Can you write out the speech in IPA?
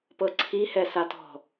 p ɤ ǀʰ i h ɛ s a t ɔ̤

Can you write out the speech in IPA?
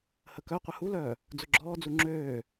h ə k œ qʷ ə h u l œː | d͡z ʊ ɡ͡ǁ ɔː d͡z u ŋ͡ǁ øː

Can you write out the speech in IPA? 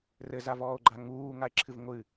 r ɘ z a v ɔː o̯ ɡ͡ǃ a ŋ uː ŋ a e̯ ǁʰ ɨ v ŋʷ ɨ

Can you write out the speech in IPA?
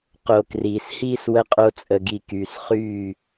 q o˧ k r iː˨ s h iː˦ s w ə˦ qʼ o˦ t͡sʼ ə˧ ɡ i˧ k yː˨ s χ yː˦˨

